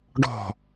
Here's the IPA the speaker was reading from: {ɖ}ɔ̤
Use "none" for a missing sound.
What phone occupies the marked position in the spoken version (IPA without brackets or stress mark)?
ɖ